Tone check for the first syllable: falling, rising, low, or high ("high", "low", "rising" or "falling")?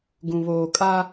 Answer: low